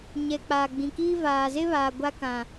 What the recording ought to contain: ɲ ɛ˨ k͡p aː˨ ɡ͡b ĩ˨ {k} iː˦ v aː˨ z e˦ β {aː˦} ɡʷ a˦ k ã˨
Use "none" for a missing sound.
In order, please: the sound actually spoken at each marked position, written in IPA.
k, aː˨

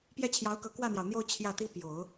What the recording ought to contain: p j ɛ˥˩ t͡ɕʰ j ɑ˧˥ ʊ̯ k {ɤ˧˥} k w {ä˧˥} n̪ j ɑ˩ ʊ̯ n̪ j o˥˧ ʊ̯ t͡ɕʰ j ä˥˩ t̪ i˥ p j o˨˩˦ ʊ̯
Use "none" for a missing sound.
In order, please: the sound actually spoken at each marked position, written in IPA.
ɤ˧˥, ä˥˩

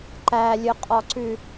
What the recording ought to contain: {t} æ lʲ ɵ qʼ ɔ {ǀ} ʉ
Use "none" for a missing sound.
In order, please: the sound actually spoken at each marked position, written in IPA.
ǃ, ǀ

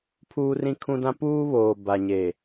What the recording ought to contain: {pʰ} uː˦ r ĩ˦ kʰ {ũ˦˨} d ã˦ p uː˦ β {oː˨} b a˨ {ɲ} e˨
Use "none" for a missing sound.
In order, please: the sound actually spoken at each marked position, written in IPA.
pʰ, ũ˦, oː˨, ɲ

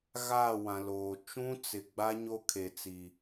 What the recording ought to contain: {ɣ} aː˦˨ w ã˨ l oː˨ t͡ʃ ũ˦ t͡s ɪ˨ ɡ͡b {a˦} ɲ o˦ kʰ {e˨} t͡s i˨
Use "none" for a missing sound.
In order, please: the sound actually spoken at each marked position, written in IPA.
ɣ, a˦, e˨

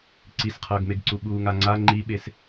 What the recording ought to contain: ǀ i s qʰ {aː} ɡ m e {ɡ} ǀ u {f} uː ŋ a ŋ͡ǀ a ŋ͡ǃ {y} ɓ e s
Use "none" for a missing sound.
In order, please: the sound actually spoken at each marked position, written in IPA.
ʌː, ɡ, ɓ, i

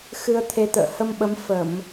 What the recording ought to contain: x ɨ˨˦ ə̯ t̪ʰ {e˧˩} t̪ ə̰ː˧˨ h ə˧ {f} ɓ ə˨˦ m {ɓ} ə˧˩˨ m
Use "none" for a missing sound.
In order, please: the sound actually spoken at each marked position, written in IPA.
e˨˦, m, f

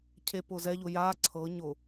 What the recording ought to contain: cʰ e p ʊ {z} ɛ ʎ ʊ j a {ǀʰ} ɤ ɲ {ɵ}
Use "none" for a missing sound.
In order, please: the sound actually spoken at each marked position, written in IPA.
z, ǀʰ, ʊ

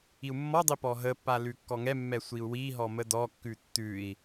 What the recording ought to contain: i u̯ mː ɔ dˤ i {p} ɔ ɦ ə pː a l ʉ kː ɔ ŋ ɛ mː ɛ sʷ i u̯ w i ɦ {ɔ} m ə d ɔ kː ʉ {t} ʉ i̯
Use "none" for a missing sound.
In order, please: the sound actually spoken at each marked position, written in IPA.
p, ɔ, tː

